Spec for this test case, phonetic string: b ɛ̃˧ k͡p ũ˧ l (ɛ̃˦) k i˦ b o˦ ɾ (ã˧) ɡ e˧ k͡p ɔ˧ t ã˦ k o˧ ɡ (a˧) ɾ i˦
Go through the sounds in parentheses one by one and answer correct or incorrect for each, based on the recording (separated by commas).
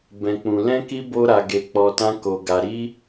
correct, incorrect, correct